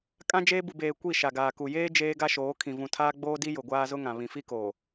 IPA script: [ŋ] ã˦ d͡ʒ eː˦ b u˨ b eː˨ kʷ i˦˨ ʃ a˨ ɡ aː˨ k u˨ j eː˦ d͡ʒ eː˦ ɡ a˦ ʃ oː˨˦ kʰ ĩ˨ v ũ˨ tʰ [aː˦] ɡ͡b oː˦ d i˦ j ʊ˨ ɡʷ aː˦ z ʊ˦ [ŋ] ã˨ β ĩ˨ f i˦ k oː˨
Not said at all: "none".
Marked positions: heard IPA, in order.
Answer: kʼ, aː˦, ŋ

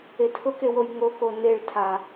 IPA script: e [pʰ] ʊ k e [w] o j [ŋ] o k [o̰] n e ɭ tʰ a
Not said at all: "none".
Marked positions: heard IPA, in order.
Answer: tʰ, w, ŋ, o

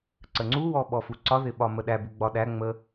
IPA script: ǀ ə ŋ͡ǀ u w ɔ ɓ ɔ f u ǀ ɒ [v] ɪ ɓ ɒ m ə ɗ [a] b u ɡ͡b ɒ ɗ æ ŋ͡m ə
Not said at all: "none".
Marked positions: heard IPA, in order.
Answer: ð, æ

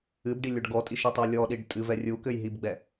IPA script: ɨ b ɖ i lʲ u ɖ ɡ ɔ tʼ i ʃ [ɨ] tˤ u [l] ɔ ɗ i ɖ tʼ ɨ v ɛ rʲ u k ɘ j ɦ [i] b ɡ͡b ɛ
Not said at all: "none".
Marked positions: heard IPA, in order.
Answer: ɨ, lʲ, i

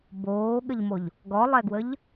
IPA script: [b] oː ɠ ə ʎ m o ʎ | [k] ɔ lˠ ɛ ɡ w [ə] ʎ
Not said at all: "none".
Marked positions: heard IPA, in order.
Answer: b, ɡ, ə

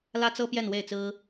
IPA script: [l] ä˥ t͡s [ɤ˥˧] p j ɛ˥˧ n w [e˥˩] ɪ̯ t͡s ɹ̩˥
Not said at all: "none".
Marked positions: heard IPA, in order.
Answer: l, ɤ˥, e˥˩

